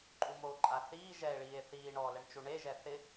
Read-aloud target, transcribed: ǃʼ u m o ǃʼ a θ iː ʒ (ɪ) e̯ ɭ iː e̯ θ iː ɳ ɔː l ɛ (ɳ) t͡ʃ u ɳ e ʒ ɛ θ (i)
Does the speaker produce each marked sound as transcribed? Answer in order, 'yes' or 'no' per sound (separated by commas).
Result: no, yes, no